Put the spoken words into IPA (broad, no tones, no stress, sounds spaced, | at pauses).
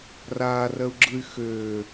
r aː r ɜ u̯ ɡ͡ǁ ɯ y̯ x øː